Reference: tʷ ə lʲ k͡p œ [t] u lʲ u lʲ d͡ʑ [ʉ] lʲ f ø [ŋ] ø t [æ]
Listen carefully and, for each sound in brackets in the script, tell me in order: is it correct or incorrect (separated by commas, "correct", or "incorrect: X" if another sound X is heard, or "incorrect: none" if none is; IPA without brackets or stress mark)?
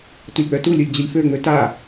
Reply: correct, incorrect: ə, incorrect: ŋ͡m, incorrect: a